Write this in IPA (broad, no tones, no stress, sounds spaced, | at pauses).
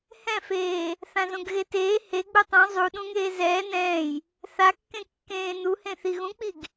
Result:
h ɛ̃ f eː | θ ã z õ ɡ ɣ e t eː h e ɡ͡b u tˤ õ zˤ u ɗ ũ ŋ eː z ɛː n ɛ̃ː j | θ a kː ẽ kː ẽː n u h ẽ θ i ɣ ũ k͡p i ɡ